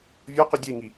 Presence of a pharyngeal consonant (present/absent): absent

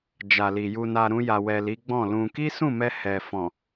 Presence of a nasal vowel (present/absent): present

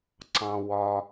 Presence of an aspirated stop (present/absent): absent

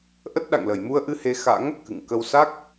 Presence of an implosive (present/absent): present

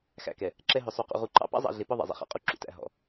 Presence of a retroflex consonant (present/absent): absent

